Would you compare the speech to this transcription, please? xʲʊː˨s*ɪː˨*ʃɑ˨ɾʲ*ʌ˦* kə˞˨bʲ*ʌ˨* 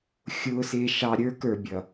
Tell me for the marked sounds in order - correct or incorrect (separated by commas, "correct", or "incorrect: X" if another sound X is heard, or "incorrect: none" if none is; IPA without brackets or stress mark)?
correct, incorrect: ə˞˦, correct